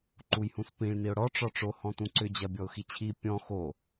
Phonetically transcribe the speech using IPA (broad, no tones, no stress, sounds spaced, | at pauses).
ǃ u j h ũ s p ĩ ɭ n i ʊ̯ ɽ ɔ ʈ͡ʂ ɔ ʈ͡ʂ o h ɔ̃ t ũ ǀ ʏ d͡ʑ ɐ bʲ ɔ ʊ̯ x i t͡ɕʰ i pʲ ɔ̃ x o